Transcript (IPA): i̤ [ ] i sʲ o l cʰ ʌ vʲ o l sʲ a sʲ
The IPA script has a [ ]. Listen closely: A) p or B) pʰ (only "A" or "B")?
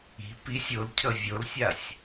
A